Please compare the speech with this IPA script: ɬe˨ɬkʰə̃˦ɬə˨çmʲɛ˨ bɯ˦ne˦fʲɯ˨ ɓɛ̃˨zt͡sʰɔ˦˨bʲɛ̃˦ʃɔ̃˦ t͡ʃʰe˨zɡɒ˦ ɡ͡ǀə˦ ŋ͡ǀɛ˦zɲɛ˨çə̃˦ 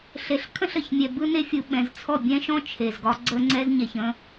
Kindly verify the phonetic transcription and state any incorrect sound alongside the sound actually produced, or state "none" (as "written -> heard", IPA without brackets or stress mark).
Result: none